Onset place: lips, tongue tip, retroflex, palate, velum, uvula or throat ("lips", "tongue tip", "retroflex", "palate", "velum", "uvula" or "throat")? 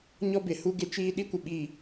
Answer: palate